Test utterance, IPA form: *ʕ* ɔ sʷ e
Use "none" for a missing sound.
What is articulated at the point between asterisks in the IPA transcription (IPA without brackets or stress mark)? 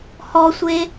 h